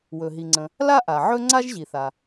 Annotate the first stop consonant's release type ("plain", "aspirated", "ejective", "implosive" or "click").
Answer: click